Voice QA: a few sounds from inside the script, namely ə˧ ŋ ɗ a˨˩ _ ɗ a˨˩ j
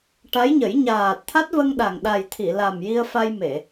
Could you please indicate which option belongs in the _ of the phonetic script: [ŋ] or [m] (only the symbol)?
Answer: ŋ